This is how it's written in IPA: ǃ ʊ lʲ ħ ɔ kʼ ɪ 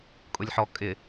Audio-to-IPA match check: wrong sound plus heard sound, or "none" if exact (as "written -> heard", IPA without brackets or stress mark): ǃ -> kʼ